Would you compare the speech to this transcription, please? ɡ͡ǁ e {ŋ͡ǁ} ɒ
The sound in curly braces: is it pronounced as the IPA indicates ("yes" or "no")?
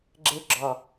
no